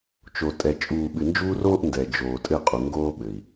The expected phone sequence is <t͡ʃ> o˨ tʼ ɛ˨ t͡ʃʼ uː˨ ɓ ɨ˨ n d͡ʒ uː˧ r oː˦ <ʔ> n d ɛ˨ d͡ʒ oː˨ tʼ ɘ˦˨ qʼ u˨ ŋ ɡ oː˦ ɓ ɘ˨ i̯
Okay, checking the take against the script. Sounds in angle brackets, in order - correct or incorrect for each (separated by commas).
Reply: correct, correct